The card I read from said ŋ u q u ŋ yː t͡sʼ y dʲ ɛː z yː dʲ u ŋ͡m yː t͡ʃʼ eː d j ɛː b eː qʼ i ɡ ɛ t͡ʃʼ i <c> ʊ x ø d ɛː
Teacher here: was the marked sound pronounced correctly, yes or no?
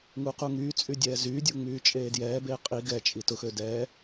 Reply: no